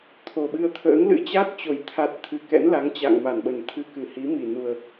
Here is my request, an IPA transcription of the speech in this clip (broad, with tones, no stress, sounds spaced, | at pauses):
t̪ʰ o˨˩ ɓ ɨ˧ ə̯ t̪ʰ ə̰ː˧˥ ŋ l ɨ̰˧˥ t͡ɕ a˦˥ t̚ t͡ɕ o˨˩ j t̪ʰ a˨˩ t̚ t̪ʰ ɨ˨˩ k ɛ̰˧˥ n l a˨˦ ŋ t͡ɕ a̰˧˨ ŋ m a˧˩ n ɓ ə˨˩ n t̪ʰ ɨ˧ k ɨ˧˩ h i˨˦ m i˨˩ n u˨˩ ə̯